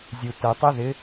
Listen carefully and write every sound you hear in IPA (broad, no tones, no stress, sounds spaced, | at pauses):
zʲ u t ə tˤ ɪ ð ɪ